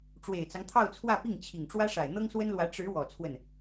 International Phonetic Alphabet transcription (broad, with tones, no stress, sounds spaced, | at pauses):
ʈ͡ʂ w e˨˩ ɪ̯ t͡s ɑ˦ ŋ t̪ʰ ɑ˥˧ ʊ̯ t͡sʰ w ä˥˧ p i˥˩ ŋ t͡ɕʰ i˨˩ ŋ ʈ͡ʂ w ä˥ ʂ a˨˩ ɪ̯ n̪ ɤ˥ ŋ s w ə˥ n l w ä˧˥ ʈ͡ʂ ɻ̩˧˥ w ɔ˨˩ t͡sʰ w ə˥˩ n